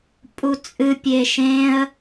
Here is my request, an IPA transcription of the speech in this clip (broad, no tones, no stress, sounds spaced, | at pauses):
pʼ u t͡sʼ ɨ pʲ e ʃ ẽ ə̯